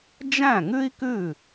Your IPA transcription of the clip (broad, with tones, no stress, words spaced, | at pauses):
d͡ʒæ̃˥˩ŋʉ˥i̯kʉ˥˩